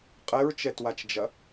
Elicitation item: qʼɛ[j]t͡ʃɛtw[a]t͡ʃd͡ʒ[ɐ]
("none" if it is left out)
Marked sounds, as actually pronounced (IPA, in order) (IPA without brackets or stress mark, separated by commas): ɹ, a, ɐ